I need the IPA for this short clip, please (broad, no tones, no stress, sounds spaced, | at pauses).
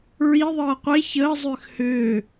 ɹ i ðˤ ɤː qʷ e ç əː zˤ ʏː x h ʏː